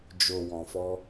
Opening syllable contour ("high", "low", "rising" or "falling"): low